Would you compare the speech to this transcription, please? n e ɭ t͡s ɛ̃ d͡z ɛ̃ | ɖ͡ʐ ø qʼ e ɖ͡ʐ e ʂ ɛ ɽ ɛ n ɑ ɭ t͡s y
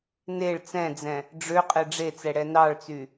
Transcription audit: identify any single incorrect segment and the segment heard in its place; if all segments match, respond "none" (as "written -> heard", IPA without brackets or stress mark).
ʂ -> t͡s